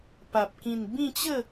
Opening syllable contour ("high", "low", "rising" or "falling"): low